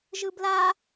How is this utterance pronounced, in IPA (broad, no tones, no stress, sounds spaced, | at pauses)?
ʒ ɯ b l a